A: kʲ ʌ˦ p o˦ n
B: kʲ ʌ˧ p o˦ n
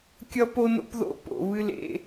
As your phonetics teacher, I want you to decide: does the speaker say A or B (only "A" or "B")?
A